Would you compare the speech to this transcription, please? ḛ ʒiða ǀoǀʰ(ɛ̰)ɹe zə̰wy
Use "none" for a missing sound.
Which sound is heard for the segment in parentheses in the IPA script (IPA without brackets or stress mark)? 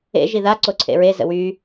ḛ